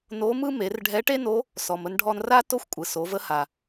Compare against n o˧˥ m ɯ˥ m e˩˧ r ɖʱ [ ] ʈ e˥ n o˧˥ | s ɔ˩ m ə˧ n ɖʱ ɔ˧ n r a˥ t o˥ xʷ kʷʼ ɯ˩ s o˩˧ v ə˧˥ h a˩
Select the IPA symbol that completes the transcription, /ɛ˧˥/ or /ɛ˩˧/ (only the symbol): ɛ˧˥